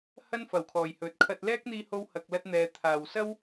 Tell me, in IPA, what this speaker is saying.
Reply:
hɐ˥nfɐ˨˩wkʰɔː˨˩j hɵ˨˥t̚kʰɐ˧t̚ lɛː˥k̚n̪iː˧ho˧whɐ˨k̚ lɐ˧t̚n̪ɛː˨ t̪ʰaː˨˩wsɐ˥w

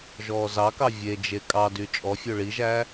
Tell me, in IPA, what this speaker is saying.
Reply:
ʒɔːzɑkɑ vʲed͡ʒe kʼɑdy t͡ʃʼɔfʲø ɭiʒæː

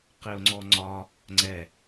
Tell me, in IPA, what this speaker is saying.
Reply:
qɪʊ̯ŋ͡ǀɔŋ͡ǀɒ | ŋ͡ǀɛ

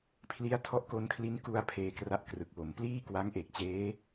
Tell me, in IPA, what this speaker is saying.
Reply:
pʰli˦˥a̯tʰɔ˦˥ʔko˧nkʰli˦˥n ku˧a̯ pʰeː˧kra˥˩ʔkrɯ˨˩k̚wo˩˦m pliː˥˩ kwa˦˥ŋʔe˨˩k̚ t͡ɕeː˦˥

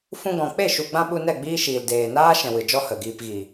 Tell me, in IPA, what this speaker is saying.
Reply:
fũ˧ɡɔ̃˨ k͡pe˦˨ʃu˨ɡ͡bã˧ ɓu˧nɛ˦˨ ɡ͡biː˦ʃiː˨l deː˨naː˦ ʃɛ̃˨wɨ˨d͡ʒɔ˦ hə˨ɡiː˧pɣi˨

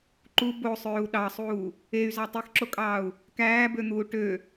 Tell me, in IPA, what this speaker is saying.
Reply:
ǃu bosˤøːu̯ ɗɑsˤuː | ey̯zɑ tˤexǁokʼɑːu̯ | kæːbøn̪uː ʈø

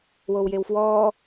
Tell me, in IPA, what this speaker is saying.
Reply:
wowjewfwɔː

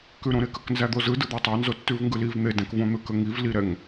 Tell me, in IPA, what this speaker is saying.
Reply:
kʉɾõɾekək nzæd̪ozɯ dɯd̪ɑtˤɑ nzotːʉvŋɡɯliv n̪edæ̃kvõn̪ɯ kəŋiv liɾɛŋ

